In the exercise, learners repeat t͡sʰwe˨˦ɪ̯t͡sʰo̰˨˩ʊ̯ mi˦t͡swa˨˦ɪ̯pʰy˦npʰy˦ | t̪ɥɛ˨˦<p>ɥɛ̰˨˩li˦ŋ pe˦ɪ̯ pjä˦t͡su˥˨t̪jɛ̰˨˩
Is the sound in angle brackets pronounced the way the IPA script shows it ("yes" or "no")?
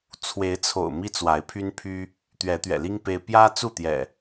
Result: no